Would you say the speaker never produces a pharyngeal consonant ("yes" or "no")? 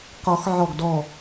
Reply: no